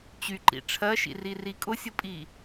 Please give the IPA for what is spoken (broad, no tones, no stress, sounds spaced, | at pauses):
t͡ɕ y ǃ ḭ ʈ͡ʂʰ ɜ ʃ ḭ r i r i kʼ ʊ sʲ ʊ pʼ i